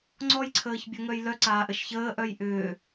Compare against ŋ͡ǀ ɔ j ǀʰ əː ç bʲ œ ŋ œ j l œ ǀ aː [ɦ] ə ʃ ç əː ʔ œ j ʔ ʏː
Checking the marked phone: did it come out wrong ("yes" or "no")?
yes